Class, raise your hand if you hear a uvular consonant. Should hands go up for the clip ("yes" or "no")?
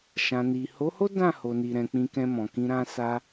no